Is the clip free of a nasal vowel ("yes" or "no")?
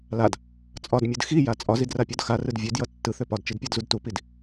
yes